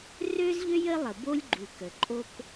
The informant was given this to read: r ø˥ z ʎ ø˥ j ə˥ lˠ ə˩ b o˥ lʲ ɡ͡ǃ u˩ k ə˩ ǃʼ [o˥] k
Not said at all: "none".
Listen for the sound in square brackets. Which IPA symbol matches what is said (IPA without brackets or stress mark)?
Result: o˥